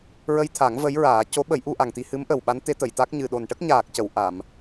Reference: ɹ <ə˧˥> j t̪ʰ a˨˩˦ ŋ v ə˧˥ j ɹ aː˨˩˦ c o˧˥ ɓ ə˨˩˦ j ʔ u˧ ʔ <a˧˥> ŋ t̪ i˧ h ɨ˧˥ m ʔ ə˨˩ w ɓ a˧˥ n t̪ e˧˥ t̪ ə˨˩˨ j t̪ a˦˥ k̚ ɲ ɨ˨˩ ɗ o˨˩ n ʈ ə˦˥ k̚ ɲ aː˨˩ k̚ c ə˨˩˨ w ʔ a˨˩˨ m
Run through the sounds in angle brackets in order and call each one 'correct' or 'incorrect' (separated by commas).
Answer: incorrect, incorrect